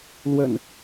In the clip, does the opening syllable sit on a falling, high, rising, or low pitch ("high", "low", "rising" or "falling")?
low